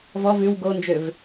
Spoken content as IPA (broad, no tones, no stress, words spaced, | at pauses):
vɔ vʉw ɡond͡ʒøv